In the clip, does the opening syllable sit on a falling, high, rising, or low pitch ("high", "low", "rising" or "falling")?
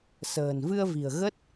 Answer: low